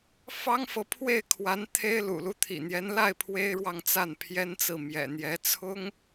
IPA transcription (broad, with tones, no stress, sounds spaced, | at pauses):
f ɑ˥ ŋ f ɤ˨ pʰ w e˥˩ ɪ̯ kʰ w a˧˥ n t̪ʰ e˥ ɪ̯ l ṵ˨˩ l u˥˩ t̪ʰ ḭ˨˩ n̪ j ɛ˧˥ n l a˥˩ ɪ̯ pʰ w e˥ ɪ̯ ɻ w ɑ˥˧ ŋ t͡s a˥˩ n pʰ j ɛ˥ n t͡s ɹ̩˥˩ m j ɛ̰˨˩ n̪ j ɛ˧˥ t͡sʰ ʊ˥ ŋ